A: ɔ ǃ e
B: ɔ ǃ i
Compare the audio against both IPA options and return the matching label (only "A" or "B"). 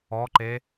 A